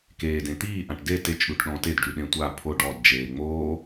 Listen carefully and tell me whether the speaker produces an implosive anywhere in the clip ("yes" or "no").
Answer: yes